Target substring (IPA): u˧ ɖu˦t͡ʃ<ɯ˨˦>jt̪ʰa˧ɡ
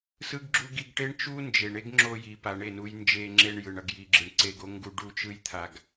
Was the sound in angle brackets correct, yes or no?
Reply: no